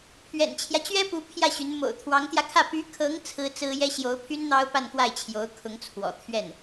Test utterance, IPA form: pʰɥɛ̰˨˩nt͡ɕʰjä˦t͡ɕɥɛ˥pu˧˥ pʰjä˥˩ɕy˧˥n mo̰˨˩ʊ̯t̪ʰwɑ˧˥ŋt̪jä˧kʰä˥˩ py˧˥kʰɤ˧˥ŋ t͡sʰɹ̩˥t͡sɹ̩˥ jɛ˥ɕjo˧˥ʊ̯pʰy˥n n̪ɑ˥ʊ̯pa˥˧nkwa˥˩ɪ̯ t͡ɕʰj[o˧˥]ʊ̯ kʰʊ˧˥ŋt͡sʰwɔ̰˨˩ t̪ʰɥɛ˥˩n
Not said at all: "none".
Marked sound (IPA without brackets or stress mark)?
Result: o˧˥